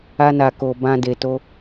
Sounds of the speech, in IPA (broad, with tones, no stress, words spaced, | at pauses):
a˧na˨ ko˨bã˧ de˨to˧